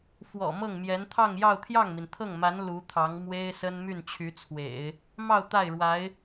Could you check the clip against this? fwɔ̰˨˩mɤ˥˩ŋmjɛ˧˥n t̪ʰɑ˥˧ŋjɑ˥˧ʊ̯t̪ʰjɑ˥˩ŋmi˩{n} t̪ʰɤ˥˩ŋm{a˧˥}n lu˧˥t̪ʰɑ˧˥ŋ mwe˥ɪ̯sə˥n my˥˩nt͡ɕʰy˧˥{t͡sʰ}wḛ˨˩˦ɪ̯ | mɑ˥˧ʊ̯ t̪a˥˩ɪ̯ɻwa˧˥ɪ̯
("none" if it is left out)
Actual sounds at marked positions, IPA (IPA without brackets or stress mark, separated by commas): n, a˧˥, t͡sʰ